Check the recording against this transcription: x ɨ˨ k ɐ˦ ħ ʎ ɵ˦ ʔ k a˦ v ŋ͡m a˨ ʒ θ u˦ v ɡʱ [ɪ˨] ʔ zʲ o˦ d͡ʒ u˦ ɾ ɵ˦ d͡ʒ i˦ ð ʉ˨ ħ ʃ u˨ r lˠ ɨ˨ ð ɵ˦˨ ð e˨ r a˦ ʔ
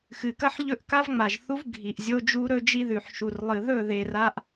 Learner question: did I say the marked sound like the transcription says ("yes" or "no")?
no